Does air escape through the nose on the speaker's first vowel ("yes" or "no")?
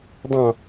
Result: yes